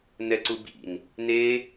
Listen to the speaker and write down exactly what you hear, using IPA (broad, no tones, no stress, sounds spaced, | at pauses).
n ɛ ǀ u b ḭ n | n e